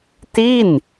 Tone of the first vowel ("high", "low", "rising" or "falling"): falling